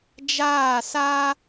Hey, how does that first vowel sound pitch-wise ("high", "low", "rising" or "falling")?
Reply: falling